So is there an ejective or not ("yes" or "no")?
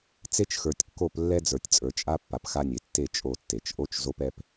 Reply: yes